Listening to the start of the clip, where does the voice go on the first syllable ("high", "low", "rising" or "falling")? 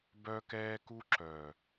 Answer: high